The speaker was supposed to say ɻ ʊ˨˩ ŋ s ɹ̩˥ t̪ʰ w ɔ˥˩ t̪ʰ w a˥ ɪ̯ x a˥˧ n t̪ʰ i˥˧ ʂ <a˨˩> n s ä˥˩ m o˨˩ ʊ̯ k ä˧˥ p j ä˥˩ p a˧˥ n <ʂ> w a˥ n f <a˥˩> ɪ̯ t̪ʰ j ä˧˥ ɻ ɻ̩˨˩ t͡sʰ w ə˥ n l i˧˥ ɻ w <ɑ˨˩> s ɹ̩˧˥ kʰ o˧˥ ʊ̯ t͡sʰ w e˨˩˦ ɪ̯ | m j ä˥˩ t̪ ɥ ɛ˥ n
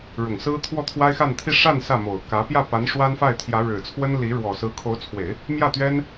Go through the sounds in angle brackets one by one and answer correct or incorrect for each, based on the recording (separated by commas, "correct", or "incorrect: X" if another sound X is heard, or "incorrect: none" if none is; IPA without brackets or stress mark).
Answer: incorrect: a˥˧, correct, correct, incorrect: ɔ˨˩